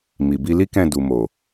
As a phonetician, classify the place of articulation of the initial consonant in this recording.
labial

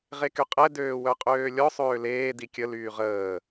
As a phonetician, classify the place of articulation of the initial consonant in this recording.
uvular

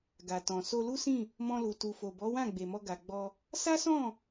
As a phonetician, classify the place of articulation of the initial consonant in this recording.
velar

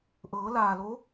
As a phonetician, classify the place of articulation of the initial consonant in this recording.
glottal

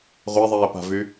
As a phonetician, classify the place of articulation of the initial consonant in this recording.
uvular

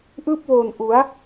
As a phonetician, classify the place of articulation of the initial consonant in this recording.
glottal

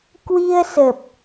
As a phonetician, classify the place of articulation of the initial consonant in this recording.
velar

